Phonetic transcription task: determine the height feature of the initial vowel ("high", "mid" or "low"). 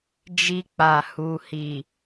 high